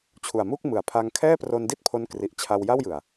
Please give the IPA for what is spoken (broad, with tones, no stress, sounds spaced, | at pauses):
t͡ɕʰ u˨˩ a̯ m u˥˩ k̚ m ɯ˩˦ a̯ pʰ a˧ ŋ kʰ ɛː˥˩ p r o˧ n d i˥˩ t̚ pʰ o˦˥ n k r i˨˩ ʔ t͡ɕʰ a˧ w j a˥˩ w j ɯ˨˩ a̯